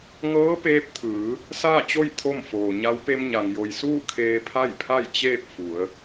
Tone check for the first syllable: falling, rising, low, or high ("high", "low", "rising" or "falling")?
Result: rising